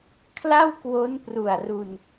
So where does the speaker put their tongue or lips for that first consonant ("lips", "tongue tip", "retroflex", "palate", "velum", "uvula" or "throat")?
velum